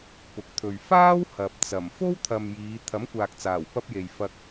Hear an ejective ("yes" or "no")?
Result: no